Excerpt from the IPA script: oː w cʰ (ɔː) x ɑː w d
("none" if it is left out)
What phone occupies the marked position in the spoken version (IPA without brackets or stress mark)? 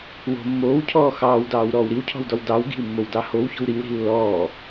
ɔː